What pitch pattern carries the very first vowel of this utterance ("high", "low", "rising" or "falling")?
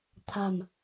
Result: low